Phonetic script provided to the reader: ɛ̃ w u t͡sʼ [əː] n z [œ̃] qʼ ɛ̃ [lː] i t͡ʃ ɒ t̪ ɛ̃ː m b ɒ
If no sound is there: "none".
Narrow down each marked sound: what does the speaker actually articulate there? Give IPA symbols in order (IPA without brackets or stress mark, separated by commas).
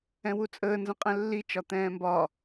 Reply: əː, ə̃, lː